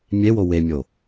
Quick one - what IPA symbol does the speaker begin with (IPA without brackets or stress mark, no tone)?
mʲ